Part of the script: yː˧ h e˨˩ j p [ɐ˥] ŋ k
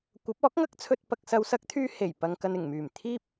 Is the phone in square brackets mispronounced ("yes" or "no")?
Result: yes